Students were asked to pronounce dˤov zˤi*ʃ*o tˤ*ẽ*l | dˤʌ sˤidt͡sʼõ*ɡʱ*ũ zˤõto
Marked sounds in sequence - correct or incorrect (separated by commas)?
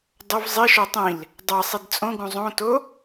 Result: correct, incorrect, incorrect